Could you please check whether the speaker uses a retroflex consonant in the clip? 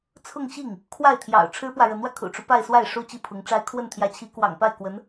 yes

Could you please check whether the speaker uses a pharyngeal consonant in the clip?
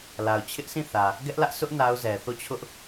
no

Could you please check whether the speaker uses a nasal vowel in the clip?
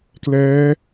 no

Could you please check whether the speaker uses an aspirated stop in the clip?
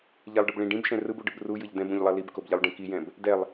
no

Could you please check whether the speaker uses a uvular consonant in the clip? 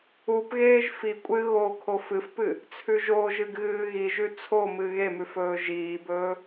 no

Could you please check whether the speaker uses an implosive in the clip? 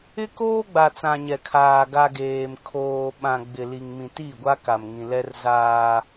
yes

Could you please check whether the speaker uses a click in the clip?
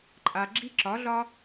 yes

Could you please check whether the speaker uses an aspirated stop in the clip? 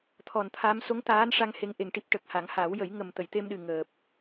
yes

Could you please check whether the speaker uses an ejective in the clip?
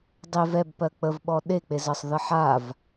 no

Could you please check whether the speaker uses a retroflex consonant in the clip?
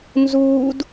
no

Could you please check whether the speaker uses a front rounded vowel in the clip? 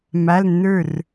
no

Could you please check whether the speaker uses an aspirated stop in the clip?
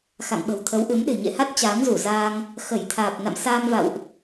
yes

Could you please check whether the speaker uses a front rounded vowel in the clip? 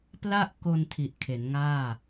no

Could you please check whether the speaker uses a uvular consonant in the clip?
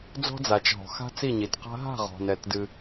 yes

